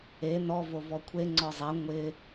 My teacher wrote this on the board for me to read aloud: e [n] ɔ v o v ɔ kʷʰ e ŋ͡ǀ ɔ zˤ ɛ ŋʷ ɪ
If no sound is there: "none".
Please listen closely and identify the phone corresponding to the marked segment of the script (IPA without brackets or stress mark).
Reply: n